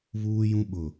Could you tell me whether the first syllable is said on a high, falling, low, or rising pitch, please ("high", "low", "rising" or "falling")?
high